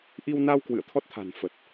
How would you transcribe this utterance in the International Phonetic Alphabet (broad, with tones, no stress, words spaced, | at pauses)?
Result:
ʔi˧wna˧w kwɨ̰˧˨ə̯t̪ʰɔ˦˥t̚t̪ʰa̤˨˩n fə˨˩t̚